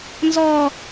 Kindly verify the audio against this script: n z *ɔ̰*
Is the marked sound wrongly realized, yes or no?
yes